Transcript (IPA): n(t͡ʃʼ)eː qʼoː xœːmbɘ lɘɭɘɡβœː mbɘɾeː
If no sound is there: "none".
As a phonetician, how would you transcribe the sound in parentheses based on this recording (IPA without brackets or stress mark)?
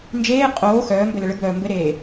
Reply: d͡ʒ